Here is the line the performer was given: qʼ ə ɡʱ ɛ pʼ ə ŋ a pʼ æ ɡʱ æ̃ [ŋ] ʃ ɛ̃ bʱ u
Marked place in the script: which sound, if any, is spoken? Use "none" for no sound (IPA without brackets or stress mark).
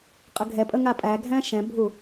none